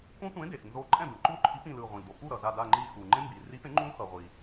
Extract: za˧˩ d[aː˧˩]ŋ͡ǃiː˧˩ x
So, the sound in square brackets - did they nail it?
yes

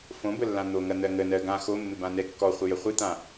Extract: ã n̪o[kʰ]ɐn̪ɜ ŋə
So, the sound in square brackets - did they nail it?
no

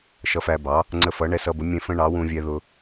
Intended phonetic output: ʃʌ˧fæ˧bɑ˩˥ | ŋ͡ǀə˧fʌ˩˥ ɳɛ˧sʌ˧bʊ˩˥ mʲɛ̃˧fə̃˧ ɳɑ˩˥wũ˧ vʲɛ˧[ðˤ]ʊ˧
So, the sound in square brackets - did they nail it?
no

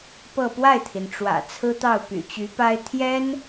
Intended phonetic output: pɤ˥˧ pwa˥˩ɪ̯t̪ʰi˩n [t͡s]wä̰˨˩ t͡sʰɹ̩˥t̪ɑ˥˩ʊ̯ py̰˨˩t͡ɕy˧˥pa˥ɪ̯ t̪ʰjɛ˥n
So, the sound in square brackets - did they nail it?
no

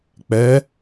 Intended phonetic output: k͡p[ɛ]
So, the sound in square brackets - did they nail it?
yes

